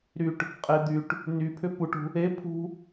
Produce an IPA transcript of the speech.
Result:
ɾ y ʈ | qʼ e d̪ y ʈ | n y pʰ ʏ p u ʈ ṳ | e pʰ ṳ

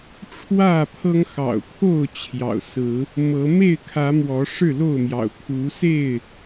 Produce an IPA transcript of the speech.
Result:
ʈ͡ʂʰ w ä˥˨ pʰ ɤ˦ ŋ x ɑ̰˨˩ ʊ̯ pʰ o˥˨ ʊ̯ t͡ɕʰ j ɑ̰˨˩ ʊ̯ s ɹ̩˨˦ | m ɤ˨˦ m e˥˨ ɪ̯ kʰ ä˨˦ m w ɔ˨˦ ʂ ɻ̩˥˨ l o˥˨ ʊ̯ m j ɑ̰˨˩ ʊ̯ kʰ u˨˦ s e˥˨ ɪ̯

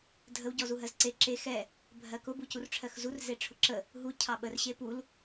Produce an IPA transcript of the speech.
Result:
dʱ ə w ɟ ɔ z u ɦ ɜ z ǀ e ǁ e x ɛ | bʱ ɜ k ʊ b u c u r ʈ͡ʂʰ ɜ x z u r z e ʈ͡ʂʰ ʊ ǁ ə | ɦ u cʰ ɑ ɓ ə r ɕ e p u l

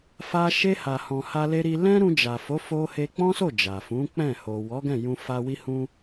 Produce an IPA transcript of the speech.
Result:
f a˧ ʃ e˧ h a˨ h ɔ̃˨ h a˧ l e˧ ɾ i˧ l ɛ̃˦ ɾ ũ˧ d͡ʒ a˨ f o˨˦ f o˧ h e˧ k͡p ɔ̃˦ s o˦˨ d͡ʒ a˨ f ũ˨˦ k͡p ɛ̃˦˨ h o˨ w ɔ˨˦ ɡ ɛ̃˦˨ j ũ˧ f a˧ w i˦ h ũ˦

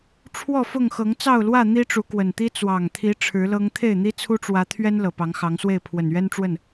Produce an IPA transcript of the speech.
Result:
ʈ͡ʂʰ w ɔ˥˨ f ʊ˥˨ ŋ x ɤ˨˦ ŋ t͡s ɑ˥˨ ʊ̯ l w ä˥˨ n̪ i˦ ʈ͡ʂ u˨˦ k w ə˨˩ n t̪ i˦ t͡s w ɑ˨˩ ŋ t̪ʰ i˨˦ ʈ͡ʂʰ ɻ̩˨˦ l ɤ˦ ŋ t̪ʰ e˥˨ ɪ̯ n̪ i˦ t͡sʰ u˦ ʈ͡ʂ w ä˨˦ t̪ʰ ɥ ɛ˦ n l ɤ˨˩ p ɑ˨˦ ŋ x ɑ˨˦ ŋ s w e˥˨ ɪ̯ pʰ w ə˨˩ n ɥ ɛ˦ n ʈ͡ʂ w ə˥˨ n

